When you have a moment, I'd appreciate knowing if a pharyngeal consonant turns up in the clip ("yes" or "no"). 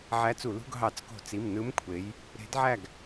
yes